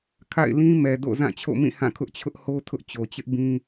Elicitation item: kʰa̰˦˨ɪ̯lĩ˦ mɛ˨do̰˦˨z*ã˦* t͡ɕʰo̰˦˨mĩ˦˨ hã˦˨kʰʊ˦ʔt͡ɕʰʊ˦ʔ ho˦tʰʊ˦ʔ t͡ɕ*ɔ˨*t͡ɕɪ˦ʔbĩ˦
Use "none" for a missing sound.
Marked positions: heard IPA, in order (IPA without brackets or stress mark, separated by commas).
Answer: ã˦˨, o˨